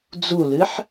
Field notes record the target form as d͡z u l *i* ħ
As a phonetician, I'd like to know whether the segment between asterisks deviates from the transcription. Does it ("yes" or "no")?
yes